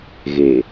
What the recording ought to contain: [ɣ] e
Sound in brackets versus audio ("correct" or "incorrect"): correct